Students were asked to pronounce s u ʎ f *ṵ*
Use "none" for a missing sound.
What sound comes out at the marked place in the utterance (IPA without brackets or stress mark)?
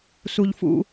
ṵ